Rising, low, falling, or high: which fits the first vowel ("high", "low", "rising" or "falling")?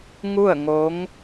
falling